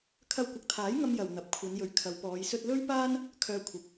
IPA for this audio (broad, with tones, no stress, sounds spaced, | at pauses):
kʰ ɐ˧ w kʷ ɐ˨ k̚ t̪ʰ aː˨˥ j ŋ ɐ˥ m j ɐ˨ w n̪ ɐ˨˥ p̚ kʷʰ ɐ˨˧ n j ɵ˨ ɥ kʰ ɐ˨˧ w p ɔː˨˧ j s ɵ˧ t̚ l ɵ˥ ɥ p aː˥ n | kʰ œː˧ kʷʰ ɐ˨˥ p̚